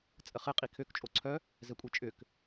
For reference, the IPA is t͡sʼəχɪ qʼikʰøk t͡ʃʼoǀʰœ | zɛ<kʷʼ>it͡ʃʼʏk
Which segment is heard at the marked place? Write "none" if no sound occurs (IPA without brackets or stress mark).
kʷʼ